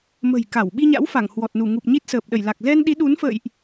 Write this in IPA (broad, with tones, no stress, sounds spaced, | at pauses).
m ə̤˨˩ j k a˧˩ w ɓ i˧ ɲ a̰˧˥ w f a˧˩ ŋ h w ɔ˨˩ t̚ n u˧˩ ŋ u˨˩ p̚ ɲ i˦˥ t̚ s əː˨˩ p̚ ɗ ə˧˩ j l a˨˩ k̚ z ɛ˧ n ɗ i˨˦ ɗ u˨˦ n f ə̰ː˧˨ j ʔ